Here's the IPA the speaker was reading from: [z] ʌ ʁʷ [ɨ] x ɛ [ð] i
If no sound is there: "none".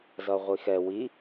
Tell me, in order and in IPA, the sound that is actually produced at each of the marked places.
z, i, w

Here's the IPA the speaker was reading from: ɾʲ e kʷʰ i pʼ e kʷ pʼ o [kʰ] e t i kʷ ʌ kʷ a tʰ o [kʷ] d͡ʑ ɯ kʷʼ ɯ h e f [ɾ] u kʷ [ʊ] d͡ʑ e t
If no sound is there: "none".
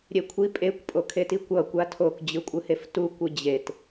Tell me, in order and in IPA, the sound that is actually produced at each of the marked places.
kʰ, k, t, ɯ

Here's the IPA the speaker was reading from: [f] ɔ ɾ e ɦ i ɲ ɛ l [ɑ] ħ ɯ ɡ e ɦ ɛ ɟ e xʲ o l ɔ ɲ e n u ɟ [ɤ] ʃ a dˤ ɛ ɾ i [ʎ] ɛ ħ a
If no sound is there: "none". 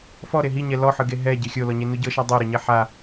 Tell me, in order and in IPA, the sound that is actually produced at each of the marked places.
f, ɔ, ɤ, ɲ

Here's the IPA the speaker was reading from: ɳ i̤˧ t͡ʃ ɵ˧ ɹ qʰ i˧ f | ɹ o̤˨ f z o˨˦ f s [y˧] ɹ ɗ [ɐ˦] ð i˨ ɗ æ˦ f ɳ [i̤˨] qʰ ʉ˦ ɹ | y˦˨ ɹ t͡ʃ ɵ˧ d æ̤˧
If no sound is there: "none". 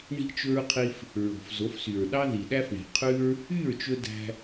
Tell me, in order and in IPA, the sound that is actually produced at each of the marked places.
y˨, ɑ˦, i̤˨

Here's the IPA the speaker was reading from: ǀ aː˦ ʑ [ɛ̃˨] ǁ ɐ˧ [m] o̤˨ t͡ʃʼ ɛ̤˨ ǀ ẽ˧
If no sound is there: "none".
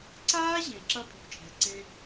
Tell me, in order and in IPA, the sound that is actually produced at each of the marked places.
ẽ˨, pʼ

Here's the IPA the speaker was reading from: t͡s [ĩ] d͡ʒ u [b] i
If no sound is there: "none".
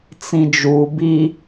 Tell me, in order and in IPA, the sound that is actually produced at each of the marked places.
ĩ, b

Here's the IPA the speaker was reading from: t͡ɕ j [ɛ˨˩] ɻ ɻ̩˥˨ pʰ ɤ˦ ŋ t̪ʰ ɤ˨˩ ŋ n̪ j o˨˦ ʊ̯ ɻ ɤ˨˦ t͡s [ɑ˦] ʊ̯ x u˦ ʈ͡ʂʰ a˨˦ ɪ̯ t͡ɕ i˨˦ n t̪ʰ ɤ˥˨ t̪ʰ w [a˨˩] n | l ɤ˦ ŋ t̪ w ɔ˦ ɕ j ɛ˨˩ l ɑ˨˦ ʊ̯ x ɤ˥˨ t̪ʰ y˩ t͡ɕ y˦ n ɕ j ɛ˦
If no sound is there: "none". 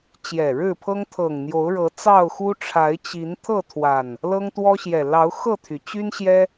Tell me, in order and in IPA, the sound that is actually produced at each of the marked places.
ɛ˨˩, ɑ˥˨, a˨˩

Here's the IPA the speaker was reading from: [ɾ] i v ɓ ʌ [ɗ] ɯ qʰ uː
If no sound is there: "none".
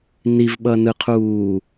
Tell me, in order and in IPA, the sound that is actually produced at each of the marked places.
n, n

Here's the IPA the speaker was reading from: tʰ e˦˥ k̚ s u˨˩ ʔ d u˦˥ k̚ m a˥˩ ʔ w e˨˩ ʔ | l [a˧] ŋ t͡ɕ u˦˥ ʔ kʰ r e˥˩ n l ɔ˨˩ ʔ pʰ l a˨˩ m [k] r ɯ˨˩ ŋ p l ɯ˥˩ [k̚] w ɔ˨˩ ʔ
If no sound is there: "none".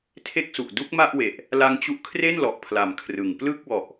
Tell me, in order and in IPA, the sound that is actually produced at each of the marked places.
a˦˥, kʰ, k̚

